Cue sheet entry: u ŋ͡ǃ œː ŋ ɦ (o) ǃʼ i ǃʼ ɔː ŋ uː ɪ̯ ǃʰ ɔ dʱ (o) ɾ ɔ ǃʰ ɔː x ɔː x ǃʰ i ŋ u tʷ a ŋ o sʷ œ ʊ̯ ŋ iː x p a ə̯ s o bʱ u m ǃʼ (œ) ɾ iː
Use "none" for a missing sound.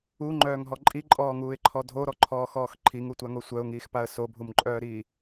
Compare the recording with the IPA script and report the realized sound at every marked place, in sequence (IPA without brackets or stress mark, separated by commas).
ɔ, o, œː